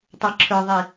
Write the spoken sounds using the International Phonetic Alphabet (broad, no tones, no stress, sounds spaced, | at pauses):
tˤ ə˞ ǁʰ ə˞ ðˤ i